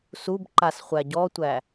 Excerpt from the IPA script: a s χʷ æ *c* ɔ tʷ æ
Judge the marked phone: incorrect: ɟ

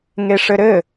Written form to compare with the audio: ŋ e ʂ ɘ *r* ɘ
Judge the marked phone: incorrect: ɾ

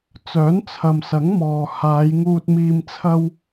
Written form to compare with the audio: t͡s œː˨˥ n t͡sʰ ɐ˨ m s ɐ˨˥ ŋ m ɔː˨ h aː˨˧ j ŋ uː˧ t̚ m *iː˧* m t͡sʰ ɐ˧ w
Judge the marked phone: correct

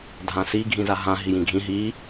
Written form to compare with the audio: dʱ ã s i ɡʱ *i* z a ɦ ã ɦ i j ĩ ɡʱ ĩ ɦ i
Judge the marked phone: incorrect: ĩ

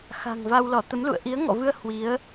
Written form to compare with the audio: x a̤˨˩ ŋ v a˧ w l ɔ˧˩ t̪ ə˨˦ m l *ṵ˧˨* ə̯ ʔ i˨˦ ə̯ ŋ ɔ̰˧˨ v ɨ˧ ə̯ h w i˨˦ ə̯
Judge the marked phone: correct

